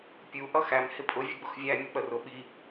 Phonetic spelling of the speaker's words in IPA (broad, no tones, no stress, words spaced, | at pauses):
pʲu ʔʌxæm hɪpʼʊ vʲʊɡ͡bʊxvʲæ mʲək͡pərʊ ɓi